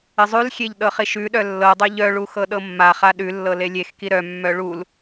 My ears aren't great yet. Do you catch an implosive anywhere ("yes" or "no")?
yes